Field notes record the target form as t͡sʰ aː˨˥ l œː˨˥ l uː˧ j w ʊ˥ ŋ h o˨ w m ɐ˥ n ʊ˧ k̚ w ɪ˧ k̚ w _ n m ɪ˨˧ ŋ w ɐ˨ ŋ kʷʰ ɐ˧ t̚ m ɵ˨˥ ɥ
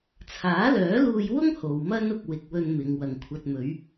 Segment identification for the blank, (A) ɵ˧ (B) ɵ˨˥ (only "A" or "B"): A